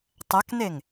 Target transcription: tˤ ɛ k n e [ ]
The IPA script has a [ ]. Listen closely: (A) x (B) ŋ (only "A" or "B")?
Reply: B